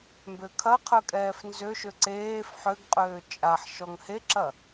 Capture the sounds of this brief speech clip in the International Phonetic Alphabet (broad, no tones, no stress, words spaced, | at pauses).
mbøkʰɐqʰœ kʼɛːfnzøʃø ǀeːf ħøɡ qʼøːt͡ʃʼaħʃɔŋ heǁɐ